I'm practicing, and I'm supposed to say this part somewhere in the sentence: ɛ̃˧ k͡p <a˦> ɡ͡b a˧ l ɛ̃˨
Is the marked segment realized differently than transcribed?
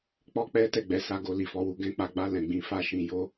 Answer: yes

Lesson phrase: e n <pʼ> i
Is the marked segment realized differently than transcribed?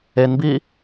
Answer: yes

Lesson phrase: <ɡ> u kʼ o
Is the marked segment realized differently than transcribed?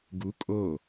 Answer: no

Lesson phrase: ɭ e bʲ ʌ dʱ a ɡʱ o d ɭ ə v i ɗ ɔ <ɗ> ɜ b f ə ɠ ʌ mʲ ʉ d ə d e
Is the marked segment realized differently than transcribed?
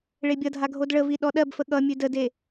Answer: no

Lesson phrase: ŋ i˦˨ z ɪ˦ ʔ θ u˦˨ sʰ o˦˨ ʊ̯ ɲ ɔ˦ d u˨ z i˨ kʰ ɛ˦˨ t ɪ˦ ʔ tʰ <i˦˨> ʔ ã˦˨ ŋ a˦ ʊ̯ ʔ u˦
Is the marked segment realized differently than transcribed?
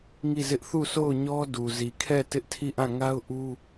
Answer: no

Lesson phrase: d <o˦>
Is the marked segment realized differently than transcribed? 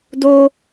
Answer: no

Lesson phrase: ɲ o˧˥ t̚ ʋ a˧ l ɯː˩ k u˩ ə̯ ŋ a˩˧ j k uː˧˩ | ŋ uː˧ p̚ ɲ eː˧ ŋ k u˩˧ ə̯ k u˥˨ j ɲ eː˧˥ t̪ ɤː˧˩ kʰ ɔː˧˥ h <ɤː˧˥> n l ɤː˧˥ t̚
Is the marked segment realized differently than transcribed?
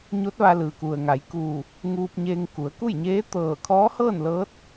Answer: yes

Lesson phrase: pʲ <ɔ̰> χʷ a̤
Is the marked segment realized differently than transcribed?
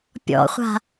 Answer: no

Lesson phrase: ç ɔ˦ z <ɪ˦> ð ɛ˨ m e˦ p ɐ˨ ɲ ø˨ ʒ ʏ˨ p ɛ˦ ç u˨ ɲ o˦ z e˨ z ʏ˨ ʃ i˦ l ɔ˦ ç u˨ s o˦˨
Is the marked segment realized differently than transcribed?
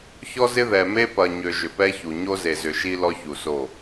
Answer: no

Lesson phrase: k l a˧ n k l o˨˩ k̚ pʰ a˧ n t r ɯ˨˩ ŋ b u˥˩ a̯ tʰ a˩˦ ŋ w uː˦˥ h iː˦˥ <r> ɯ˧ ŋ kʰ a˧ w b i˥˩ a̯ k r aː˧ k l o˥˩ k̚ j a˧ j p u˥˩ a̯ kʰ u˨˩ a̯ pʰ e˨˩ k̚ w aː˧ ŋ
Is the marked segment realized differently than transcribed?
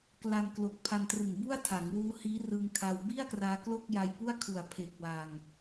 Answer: no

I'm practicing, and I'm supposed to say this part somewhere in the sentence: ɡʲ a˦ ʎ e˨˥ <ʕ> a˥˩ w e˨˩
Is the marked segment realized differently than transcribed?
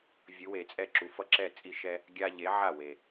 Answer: no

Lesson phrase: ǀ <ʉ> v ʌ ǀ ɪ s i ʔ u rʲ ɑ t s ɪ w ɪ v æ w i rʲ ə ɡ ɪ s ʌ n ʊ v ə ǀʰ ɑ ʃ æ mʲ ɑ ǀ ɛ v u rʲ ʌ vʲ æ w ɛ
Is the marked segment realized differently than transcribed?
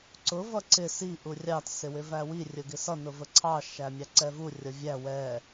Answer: yes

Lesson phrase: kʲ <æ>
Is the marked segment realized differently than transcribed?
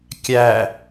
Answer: no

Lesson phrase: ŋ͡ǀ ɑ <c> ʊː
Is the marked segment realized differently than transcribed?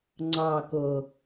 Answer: yes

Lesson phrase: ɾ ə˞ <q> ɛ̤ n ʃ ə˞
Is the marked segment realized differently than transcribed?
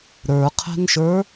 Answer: yes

